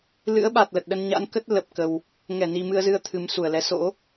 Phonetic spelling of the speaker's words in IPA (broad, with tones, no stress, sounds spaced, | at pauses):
l ɨ̰˧˥ ə̯ ɓ a˨˩ t̚ l ə˨˩ t̚ ɗ ə˧ n ɲ a̰˧˥ n k ə˦˥ t̚ l ə˨˩ p̚ k ə˨˩ w | ŋ ɛ˧˩ n i˨˩ m ɨ˧ ə̯ z ɨ˧ ə̯ t̪ʰ ɨ˨˩ m s u˧˩ ə̯ l ɛ˨˦ s o̰˧˥